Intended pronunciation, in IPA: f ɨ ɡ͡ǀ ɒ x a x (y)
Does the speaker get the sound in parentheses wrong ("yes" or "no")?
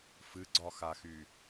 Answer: no